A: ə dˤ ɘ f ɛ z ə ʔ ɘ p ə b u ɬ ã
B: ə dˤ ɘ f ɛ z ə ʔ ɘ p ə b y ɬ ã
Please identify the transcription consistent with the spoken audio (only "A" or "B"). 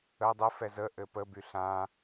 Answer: B